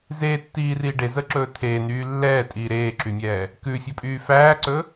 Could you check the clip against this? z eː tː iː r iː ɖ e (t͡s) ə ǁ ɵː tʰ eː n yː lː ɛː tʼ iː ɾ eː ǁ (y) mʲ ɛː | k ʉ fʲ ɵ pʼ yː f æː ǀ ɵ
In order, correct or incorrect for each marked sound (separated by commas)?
incorrect, correct